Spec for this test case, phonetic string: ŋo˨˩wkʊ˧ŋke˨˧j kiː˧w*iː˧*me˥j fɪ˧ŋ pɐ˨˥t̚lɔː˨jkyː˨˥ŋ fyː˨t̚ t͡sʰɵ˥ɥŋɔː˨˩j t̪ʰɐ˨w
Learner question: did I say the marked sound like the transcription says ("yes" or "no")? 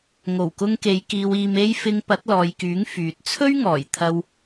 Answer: yes